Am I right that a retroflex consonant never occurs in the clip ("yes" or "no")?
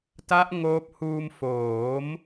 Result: yes